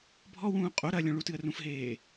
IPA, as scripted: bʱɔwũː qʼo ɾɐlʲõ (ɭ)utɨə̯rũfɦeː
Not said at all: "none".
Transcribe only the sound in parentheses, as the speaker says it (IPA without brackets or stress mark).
ɭ